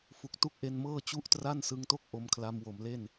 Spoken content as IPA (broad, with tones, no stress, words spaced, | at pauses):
fu˨˩k̚tu˥˩k̚ ʔe˧nmɤː˥˩t͡ɕu˥˩ʔ tra˥˩nsɯ˧ŋto˥˩k̚ ʔo˧mkʰla˧mwo˩˦mle˥˩n